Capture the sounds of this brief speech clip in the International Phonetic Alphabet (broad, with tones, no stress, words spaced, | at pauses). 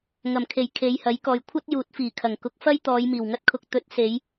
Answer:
ŋɐ˨˩mkʰe˨˩j kʰe˨˧jhɐ˨˥jkɔː˨j kʷʰɐ˥t̚ juː˨˥t̚fiː˨˩kʰɐ˨˩ŋ kʊ˨˥k̚fɐ˥jt̪ɔː˨˧jmiː˨˩w ŋɐ˥t̚kʰʊ˧k̚ t̪ɵ˨˥t̚se˨˧j